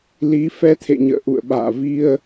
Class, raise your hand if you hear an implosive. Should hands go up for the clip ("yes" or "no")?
yes